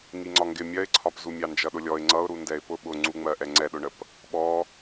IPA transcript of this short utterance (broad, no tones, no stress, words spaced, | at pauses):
ŋiŋ͡ǀɒŋɡɪ mʲɜɪ̯ǀʰɒpzu mʲɑnd͡ʒʌɗʊlʲɔɪ̯ ŋ͡ǀʌʊ̯ ɾundɛɪ̯pʊ ɓʊ ŋ͡ǀuŋ͡mɜʔɛ ŋ͡ǀɛɗʊɳəp | ɓɔ